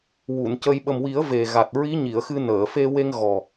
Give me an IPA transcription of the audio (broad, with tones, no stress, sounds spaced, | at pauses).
w u˨˩˨ n c ə˧ j ɓ ə˨˩ m w i˨˩˦ ə̯ v e˨˩ ɣ a˨˩ t̚ ɹ i˧˥ ɲ i˨˩˨ ə̯ x ɨ˧ n əː˨˩˨ f e˧ w e˧ ŋ ɣ ɔ˨˩